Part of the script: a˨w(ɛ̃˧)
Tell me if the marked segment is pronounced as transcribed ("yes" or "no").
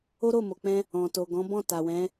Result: no